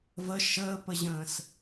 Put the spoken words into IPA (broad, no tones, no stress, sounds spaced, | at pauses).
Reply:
v ə ʃ əː p ə ʑ ə̃ː s